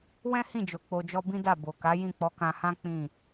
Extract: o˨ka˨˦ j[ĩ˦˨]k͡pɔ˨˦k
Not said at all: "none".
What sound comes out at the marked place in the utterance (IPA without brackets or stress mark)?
ĩ˦˨